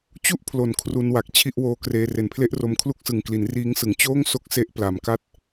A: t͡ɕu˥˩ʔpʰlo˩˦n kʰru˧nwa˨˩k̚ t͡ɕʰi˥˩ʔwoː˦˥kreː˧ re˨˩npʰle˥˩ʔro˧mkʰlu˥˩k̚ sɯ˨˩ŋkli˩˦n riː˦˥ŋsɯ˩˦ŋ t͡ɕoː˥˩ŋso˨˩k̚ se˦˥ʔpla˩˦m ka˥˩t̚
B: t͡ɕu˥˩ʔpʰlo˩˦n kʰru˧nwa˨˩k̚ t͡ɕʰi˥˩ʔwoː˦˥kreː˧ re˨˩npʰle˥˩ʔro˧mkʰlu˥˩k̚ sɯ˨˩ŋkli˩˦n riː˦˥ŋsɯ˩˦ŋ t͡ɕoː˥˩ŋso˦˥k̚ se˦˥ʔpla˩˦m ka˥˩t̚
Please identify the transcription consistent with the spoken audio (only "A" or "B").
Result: B